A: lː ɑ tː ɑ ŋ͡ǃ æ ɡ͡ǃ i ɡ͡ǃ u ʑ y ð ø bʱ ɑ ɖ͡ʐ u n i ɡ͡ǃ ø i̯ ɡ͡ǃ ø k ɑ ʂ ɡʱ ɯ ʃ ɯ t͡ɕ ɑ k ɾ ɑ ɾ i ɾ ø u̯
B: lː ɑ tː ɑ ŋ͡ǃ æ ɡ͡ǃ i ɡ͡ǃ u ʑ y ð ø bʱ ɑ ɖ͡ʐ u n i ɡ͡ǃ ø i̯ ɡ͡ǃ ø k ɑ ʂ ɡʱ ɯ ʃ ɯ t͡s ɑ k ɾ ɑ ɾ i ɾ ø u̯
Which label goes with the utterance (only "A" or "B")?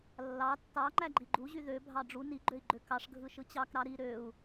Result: A